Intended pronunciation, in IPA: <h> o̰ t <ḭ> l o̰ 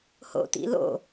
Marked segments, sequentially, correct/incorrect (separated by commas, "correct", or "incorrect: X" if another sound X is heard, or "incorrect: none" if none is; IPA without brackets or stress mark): correct, correct